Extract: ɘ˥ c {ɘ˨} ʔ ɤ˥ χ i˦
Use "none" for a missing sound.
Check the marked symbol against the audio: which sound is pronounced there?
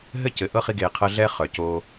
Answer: ɘ˨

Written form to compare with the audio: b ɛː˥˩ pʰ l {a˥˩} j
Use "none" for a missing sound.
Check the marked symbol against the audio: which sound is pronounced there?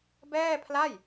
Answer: a˥˩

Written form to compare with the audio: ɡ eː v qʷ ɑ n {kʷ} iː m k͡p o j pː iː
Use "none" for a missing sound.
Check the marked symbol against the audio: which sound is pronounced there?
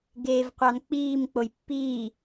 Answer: k͡p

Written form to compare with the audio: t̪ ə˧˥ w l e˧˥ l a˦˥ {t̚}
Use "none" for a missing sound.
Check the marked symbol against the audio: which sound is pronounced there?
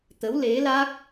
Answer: k̚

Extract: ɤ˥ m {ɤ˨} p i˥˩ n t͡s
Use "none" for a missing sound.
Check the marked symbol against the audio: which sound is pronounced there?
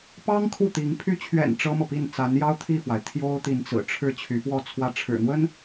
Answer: ɤ˨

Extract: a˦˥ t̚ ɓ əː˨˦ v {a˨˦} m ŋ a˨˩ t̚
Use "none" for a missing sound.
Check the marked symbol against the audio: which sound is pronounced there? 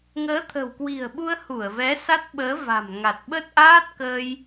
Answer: a̤˨˩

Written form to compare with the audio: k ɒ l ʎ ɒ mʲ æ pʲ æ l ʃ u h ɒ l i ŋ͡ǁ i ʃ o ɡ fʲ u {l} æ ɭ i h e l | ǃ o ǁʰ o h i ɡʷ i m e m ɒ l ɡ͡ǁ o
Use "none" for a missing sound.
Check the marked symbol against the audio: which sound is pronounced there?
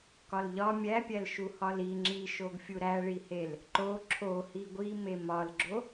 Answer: ɾ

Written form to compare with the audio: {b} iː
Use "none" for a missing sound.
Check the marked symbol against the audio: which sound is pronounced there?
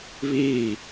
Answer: β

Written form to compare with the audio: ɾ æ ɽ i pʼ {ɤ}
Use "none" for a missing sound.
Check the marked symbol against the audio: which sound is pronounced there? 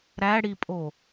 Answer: o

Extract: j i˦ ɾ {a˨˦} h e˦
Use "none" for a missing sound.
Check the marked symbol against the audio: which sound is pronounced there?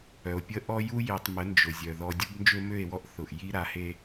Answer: a˨˦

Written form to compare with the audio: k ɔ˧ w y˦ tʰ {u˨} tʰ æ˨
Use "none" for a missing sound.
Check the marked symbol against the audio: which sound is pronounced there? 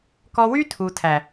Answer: u˨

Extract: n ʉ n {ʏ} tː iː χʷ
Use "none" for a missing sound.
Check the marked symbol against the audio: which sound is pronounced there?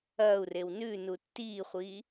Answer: u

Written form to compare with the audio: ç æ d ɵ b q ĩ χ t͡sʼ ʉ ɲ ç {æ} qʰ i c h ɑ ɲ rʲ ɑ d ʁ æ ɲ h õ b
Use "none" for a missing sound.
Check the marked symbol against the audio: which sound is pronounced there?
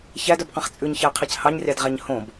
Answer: æ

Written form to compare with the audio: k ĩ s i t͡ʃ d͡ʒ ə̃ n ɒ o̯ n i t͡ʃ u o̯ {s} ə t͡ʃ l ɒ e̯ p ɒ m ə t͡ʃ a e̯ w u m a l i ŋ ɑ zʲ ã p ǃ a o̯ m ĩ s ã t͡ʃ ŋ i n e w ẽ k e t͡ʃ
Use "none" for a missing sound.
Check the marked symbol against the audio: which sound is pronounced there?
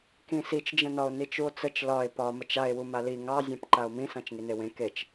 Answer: t͡s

